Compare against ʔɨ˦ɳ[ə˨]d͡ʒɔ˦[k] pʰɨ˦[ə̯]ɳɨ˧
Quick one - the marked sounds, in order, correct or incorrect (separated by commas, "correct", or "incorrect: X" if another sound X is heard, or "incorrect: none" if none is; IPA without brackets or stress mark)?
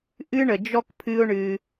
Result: correct, correct, incorrect: ʊ̯